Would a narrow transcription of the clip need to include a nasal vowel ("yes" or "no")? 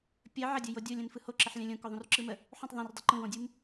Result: yes